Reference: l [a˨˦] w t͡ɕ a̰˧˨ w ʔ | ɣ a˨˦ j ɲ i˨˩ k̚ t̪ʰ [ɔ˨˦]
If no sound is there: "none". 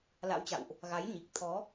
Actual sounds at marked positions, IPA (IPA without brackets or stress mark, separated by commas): a̰˧˥, ɔ˨˦